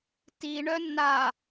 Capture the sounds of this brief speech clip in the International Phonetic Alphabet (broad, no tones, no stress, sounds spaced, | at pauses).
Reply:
t i ɳ œ nː a